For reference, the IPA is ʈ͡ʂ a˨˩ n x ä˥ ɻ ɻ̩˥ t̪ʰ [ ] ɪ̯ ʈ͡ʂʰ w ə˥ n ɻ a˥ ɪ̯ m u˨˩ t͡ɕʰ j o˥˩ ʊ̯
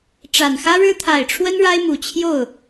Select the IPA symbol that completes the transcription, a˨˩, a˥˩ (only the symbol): a˨˩